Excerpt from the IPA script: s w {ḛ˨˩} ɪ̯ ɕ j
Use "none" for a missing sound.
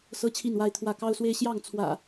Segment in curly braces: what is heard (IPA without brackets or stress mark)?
e˦